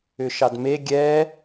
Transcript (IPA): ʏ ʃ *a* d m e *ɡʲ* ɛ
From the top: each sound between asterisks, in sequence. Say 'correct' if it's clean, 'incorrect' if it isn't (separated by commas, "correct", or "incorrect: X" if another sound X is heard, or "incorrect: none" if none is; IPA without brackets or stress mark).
incorrect: ɑ, correct